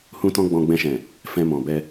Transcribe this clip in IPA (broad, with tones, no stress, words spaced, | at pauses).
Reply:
hũ˦tɔ̃˦ ɡ͡bɔ̃˧ɡ͡bɛ̃˧ʃɛ̃˨ | fɛ̃˧mɔ̃˨bɛ˧